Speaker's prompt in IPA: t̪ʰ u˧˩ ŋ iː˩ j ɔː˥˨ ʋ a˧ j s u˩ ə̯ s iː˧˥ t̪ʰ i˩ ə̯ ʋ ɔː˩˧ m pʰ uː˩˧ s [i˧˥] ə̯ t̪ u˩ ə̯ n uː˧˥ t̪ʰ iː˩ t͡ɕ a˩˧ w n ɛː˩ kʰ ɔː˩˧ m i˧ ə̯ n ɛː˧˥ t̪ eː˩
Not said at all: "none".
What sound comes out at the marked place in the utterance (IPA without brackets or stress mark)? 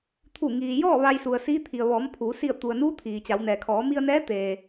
i˧˩